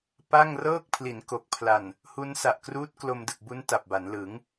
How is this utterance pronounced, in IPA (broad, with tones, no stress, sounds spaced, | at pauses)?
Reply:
p a˥˩ ŋ r ɤː˥˩ k̚ pʰ l i˩˦ n k o˨˩ k̚ pʰ l a˨˩ n | h u˦˥ n s a˨˩ ʔ k r uː˦˥ t̚ k l o˧ m d ɯ˨˩ k̚ b u˦˥ n t a˨˩ p̚ b a˩˦ n l ɯ˩˦ ŋ